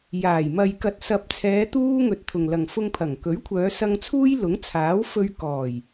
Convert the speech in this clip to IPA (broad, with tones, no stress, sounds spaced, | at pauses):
j aː˨˩ j m ɐ˨ j k ɐ˨ t̚ s ɐ˨ p̚ t͡sʰ ɛː˨˧ t̪ uː˥ ŋ ɵ˧ t̚ t̪ʰ ʊ˨ ŋ l ɐ˨ ŋ f ʊ˧ ŋ pʰ ɐ˨˩ ŋ k ɵ˨˥ ɥ kʷʰ œː˨˧ s ɐ˧ ŋ t͡sʰ uː˥ j l ʊ˨˥ ŋ t͡sʰ aː˨˥ w f ɵ˧ ɥ k ɔː˨˩ j